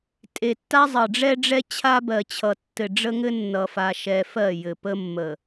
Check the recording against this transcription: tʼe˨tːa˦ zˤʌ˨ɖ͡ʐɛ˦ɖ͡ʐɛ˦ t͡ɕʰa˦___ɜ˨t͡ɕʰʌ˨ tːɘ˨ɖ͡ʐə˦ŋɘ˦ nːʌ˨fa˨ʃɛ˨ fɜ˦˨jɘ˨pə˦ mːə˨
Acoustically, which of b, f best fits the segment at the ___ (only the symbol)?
b